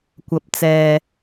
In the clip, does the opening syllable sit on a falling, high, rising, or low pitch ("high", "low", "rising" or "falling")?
low